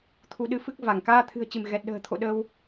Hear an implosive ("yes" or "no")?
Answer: yes